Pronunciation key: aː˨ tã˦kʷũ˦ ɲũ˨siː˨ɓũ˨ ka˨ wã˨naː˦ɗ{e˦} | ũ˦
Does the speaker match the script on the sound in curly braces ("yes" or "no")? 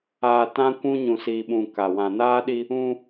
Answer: no